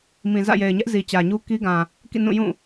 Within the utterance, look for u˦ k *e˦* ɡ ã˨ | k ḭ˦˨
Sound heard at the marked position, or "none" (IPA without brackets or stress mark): i˦